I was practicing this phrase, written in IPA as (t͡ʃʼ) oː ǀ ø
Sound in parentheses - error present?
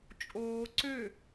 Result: no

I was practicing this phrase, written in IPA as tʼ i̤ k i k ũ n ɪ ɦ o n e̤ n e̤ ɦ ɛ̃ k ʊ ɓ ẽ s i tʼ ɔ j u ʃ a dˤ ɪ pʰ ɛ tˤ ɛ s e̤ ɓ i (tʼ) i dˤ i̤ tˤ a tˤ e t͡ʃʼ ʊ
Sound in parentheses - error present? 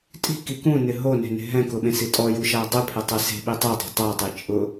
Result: yes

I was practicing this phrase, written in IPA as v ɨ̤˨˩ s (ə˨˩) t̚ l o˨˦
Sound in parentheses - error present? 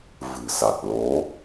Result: yes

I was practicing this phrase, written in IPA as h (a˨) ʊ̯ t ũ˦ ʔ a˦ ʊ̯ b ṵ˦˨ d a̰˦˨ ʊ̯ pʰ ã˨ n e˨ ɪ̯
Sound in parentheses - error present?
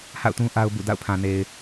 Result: yes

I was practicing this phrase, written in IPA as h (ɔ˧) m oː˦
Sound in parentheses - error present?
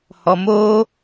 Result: no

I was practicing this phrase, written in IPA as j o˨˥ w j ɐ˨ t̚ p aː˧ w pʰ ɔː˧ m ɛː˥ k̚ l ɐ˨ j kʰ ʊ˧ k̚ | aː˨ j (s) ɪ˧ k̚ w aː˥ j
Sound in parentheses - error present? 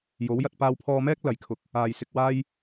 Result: no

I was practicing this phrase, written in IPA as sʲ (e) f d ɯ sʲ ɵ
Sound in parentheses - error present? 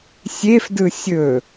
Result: no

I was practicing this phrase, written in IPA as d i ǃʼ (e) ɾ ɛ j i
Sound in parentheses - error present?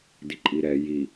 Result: yes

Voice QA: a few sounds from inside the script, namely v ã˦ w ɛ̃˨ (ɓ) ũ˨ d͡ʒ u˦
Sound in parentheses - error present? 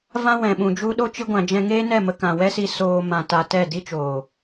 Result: no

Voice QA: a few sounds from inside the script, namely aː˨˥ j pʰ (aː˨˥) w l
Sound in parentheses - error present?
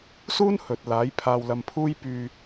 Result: yes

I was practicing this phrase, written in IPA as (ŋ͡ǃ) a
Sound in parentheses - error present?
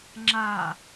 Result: yes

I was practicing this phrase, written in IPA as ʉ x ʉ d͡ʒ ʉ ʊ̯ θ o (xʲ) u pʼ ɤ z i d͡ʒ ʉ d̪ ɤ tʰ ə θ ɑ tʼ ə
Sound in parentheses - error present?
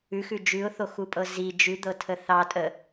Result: yes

